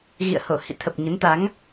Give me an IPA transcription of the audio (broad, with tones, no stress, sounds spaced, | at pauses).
ɣ ḭ˧˨ ə̯ h o˧˩ h ḭ˧˨ t̪ʰ ə˨˩ p̚ ɲ ə˨˦ n t̪ a˨˦ ŋ